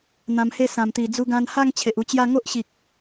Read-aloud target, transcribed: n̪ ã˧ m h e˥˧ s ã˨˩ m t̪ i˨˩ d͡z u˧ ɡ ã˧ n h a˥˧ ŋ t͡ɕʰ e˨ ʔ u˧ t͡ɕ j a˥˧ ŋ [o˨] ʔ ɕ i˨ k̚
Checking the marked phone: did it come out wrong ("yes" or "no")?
yes